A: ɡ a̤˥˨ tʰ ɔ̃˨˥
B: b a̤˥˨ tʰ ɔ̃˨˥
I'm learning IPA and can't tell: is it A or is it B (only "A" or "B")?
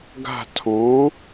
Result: A